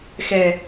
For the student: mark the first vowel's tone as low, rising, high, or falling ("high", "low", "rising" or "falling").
low